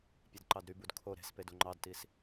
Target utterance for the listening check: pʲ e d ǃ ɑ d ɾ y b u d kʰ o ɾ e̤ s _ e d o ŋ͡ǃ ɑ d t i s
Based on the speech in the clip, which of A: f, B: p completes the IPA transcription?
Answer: B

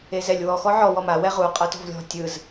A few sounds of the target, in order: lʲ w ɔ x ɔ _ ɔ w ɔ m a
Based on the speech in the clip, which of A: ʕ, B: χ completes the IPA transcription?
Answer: A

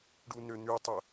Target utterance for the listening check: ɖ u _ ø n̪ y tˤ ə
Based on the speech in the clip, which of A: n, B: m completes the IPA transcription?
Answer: A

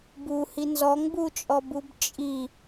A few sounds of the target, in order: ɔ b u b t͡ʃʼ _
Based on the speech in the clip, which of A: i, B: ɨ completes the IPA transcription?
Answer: A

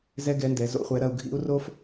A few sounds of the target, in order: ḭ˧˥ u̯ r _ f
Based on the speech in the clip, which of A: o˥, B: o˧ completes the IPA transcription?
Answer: A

